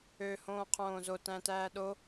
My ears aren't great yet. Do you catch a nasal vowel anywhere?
yes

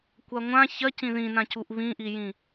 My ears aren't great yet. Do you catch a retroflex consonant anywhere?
no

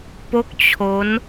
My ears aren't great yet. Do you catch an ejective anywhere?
no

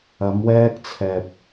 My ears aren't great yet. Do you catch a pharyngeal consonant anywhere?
no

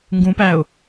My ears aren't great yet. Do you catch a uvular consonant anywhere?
no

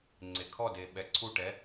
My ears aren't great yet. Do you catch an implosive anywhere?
yes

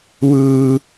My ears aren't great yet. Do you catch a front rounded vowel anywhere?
no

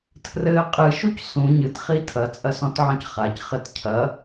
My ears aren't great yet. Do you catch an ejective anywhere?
yes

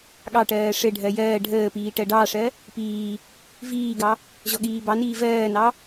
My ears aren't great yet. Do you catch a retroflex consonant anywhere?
yes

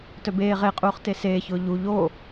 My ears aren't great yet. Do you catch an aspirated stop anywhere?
no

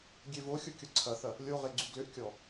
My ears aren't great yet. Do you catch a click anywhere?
yes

